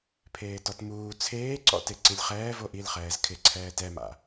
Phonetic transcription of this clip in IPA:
pʰ eː t ɔ t m uː t͡sʰ eː ǀ ɔ̰ t e ǀ i lʲ χ ɛː v o ʔ i l χ ɛː z kʰ ɪ ǀʰ ɛː t ɛ m a̰

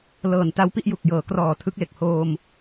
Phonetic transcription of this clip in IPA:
l ɤː˨˩ n t a˦˥ w p i˦˥ ʔ j u˨˩ k̚ j ɤː˩˦ k r ɔː˨˩ tʰ ɯ˦˥ k̚ l e˨˩ k̚ h oː˧ m

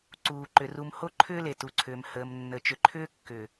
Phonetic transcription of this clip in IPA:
ǀ uː˨ ǃ ʏ˨ r u˨ m h o˦ ǃʰ ʏː˦ l e˨ t u˨ ǀʰ ʏː˨ m h əː˨ m nː ə˨ t͡ʃ ʏ˨ ǃʰ ʏː˦ kː ʏ˨

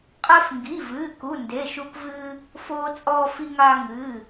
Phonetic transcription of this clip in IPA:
qʼ ɛ˧ f ŋ ɡ i˩˧˩ v ɨː˩˧˩ k u˩˧˩ n d e˩˧˩ ʃ u˧ k v ɨː˧ | f oː˧ t͡sʼ ɔː˧ f i˧ ŋ aː˧ ŋ ɨː˩˧˩

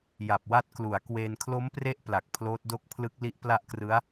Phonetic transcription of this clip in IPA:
j a˨˩ p̚ w a˦˥ t̚ k l u˩˦ a̯ k w eː˧ n kʰ l o˦˥ m p r e˦˥ ʔ p l a˨˩ k̚ pʰ l oː˦˥ t̚ d o˥˩ k̚ pʰ l ɯ˦˥ k̚ l i˦˥ ʔ p l a˦˥ ʔ k r ɯ˦˥ a̯

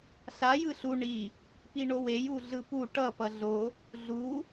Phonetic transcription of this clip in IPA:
ɬ a j ɯ ɬ u ɳ i | p i ɳ o w e j u ɮ ɯ p u ʈ ʌ p ʌ ɮ o | ɮ u

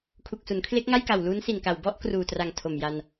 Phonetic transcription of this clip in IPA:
kʰ u˨˩ k̚ s u˩˦ n kʰ l e˦˥ k̚ ŋ a˥˩ j k a˨˩ w l uː˦˥ n s i˨˩ n k a˨˩ w b ɔ˥˩ ʔ k r uː˨˩ t r a˨˩ ŋ tʰ o˨˩ m j a˧ n

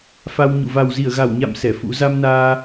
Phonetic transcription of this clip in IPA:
f a˧ w ɲ ṵ˧˨ v a˨˩ w z i˧˩ ə̯ ɣ a˧˩ w ɲ a̰˧˨ m s ɛ˧˩ f ṵ˧˥ z a˧ m n aː˧

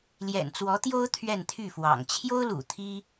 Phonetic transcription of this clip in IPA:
l j ɛ̰˨˩ n t͡s w ɔ˧˥ t̪ j o˥ ʊ̯ t̪ʰ ɥ ɛ˥˧ n t̪ʰ y˥˩ f w ɑ̰˨˩ ŋ t͡ɕʰ j o˥ ʊ̯ l ṵ˨˩ t̪ʰ i˥

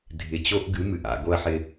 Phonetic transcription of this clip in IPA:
dʱ ɪ˨ t͡ɕ o˦ ʔ ɡ ɨ˨˦ m ɨ˨ ʔ a̰˨ ɡ o˧ ɐ̯ ħ ɪ˧

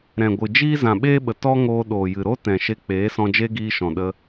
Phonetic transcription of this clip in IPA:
ɾ ɛ̃˨ ɡʷ ɨ˨ d͡ʒ iː˦ z ã˨ ɓ eː˦ ɓ ə˨ t ɔ˦ ŋ oː˧ ɗ oː˨ j ɨ˨ ɾ o˦ t ɛ̃˨ ʃ e˧ k͡p eː˨˦ s ɔ̃˧ d͡ʒ e˦ ɡ iː˧ ʃ ɔ̃˨ ɗ ə˧

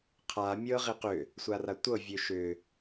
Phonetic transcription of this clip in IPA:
qʰ a mʲ ɤ ʁ i q ʏ | sʷ a r a tʷ ɤ vʲ ø ʃ ʏ

